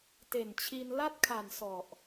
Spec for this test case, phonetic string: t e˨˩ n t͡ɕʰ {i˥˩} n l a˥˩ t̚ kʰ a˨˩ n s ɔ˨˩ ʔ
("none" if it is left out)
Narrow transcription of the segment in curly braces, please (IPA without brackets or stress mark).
i˧